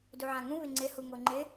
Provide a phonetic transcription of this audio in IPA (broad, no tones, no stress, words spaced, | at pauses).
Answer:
duʕãŋũ βɪŋ͡ǀɪ huŋoŋ͡ǃɪ